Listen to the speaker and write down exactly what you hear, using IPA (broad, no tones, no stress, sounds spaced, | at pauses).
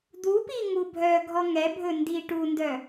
d̪ u p i ŋ u bʱ œ ɡʱ ɔ ŋ ɛ bʱ ɵ n d i ʈ u n d œ